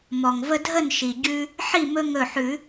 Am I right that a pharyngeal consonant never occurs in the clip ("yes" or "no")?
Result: no